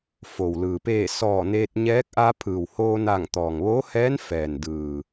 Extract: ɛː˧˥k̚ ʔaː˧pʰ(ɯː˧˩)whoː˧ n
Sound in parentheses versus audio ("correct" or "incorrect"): incorrect